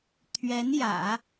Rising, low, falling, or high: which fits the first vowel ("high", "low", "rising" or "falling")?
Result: rising